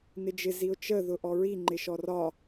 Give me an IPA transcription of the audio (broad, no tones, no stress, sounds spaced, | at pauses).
n ɪ d͡ʒ ɪ z i ʊ̯ t͡ʃ ə ð ʊ ʔ ɔ ɹ i ŋ͡ǃ ɪ ʃ ɔ r ɒ